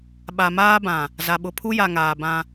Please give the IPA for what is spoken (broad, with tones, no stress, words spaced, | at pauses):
ɓa˨maː˦bã˨ | za˨ɓʊ˨ pʰu˦ja˨ŋaː˨ bã˦